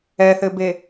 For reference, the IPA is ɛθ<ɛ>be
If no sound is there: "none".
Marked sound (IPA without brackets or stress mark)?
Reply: ɘ